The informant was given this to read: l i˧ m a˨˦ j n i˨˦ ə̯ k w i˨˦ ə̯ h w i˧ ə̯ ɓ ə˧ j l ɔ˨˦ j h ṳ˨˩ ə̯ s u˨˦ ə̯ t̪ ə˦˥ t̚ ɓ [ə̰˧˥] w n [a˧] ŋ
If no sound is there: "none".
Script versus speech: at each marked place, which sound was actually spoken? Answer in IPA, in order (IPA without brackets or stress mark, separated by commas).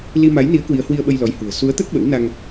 ə̰˧˥, a˧